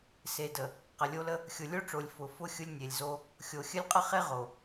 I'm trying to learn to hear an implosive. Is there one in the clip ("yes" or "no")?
no